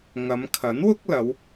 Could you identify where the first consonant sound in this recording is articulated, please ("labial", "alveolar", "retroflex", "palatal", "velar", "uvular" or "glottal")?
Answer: velar